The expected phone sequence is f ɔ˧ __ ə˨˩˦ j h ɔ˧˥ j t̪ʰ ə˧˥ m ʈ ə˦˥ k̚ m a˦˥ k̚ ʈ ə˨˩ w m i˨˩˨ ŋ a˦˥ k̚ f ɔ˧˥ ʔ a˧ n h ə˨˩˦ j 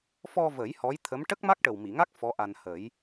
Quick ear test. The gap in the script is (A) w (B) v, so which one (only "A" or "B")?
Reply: B